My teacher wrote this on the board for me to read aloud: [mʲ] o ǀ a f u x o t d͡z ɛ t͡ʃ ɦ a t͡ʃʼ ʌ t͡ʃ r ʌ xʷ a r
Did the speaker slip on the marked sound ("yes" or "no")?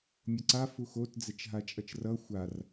no